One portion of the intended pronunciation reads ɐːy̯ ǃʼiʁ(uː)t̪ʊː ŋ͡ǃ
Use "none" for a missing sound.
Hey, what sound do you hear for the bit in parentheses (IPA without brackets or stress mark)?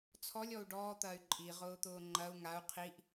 ʊː